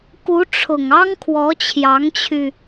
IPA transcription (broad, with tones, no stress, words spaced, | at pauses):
ku˧˥ ʈ͡ʂʰʊ˨˩ŋ ɑ˥ŋkʰwɔ˧˥t͡ɕʰjɑ˧˥ŋt͡ɕʰy˧